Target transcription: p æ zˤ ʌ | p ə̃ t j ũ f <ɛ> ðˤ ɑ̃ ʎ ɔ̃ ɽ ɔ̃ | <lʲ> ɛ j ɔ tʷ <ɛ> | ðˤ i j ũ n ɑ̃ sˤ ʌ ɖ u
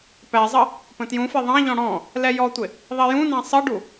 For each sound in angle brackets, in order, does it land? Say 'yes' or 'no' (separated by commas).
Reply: yes, no, no